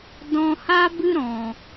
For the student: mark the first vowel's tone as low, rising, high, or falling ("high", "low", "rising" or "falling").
low